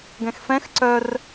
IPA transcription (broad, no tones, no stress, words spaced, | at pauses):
ɡɛ̃xfɛ̃x ǀœr